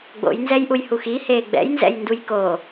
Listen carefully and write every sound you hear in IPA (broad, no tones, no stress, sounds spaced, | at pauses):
ɡ͡b o̰ j n z ɛ j ʔ u j h u x i h eː ɡ͡b ɛ̰ j n z ɛ̰ j n d u j k o